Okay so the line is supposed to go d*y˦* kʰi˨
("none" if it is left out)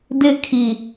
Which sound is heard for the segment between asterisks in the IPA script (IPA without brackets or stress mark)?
ɪ˦